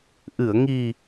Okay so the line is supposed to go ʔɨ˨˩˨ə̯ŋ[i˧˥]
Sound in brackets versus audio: incorrect: i˨˩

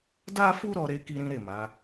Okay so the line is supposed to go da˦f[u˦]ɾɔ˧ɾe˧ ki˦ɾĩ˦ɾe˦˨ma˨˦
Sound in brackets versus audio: correct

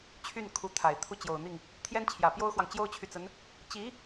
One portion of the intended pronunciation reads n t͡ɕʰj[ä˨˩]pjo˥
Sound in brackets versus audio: correct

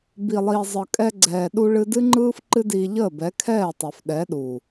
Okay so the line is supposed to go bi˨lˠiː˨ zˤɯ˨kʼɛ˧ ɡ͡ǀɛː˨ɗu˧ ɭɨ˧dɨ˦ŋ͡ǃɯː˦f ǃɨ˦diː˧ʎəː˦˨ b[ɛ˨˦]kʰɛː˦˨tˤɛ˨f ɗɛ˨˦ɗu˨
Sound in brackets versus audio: correct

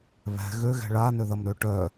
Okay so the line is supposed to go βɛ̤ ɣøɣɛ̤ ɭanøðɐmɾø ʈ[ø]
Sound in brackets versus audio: incorrect: œ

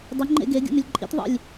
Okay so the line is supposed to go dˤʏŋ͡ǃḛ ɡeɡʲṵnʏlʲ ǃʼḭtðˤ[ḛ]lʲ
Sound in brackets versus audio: incorrect: ḭ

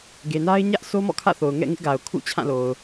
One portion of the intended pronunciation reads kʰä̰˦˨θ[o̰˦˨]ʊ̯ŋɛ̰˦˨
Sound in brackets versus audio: incorrect: o˨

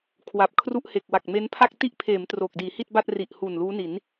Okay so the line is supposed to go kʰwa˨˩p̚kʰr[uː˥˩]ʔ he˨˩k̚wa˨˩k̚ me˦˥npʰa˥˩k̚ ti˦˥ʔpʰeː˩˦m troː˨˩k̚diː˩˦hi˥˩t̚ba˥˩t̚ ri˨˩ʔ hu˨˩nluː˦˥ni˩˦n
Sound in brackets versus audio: incorrect: u˥˩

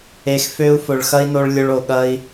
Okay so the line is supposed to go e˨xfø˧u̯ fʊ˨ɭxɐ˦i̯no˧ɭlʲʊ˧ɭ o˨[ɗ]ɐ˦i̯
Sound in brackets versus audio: incorrect: ɠ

